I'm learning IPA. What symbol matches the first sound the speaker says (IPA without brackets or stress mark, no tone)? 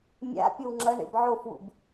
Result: mʲ